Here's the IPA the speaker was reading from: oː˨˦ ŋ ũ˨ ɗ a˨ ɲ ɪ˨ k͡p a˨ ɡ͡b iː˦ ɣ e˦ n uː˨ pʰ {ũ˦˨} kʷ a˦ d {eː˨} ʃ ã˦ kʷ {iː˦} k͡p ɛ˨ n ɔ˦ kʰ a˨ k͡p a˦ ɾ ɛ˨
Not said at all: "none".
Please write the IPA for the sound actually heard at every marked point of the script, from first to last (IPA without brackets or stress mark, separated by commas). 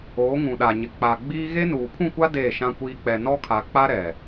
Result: ũ˦˨, eː˦˨, iː˦